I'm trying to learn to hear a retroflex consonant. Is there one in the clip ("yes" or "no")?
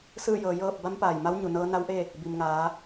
no